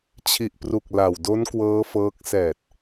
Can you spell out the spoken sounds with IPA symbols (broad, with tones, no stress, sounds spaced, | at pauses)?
t͡ɕʰ i˨˩ ʔ p r u˨˩ k̚ l a˨˩ w d o˦˥ n k w ɤː˦˥ f ɤː˦˥ k̚ s ɛː˨˩ t̚